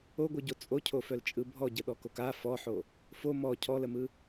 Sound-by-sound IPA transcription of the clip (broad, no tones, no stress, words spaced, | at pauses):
oɡʷɯɟo t͡sʼocʰofœlt͡ʃʼɯ bʱɔɟəɗɔkok a fɔħo | fo mɔ cʰɔləmɯ